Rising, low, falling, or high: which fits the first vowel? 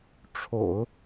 low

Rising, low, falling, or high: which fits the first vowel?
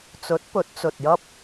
rising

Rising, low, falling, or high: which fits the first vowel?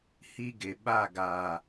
high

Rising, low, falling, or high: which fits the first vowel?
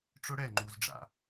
high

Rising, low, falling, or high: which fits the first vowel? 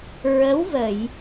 rising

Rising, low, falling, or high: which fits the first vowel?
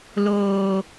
low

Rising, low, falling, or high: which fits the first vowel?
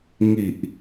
low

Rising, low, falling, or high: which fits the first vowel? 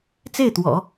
falling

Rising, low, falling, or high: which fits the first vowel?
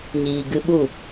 low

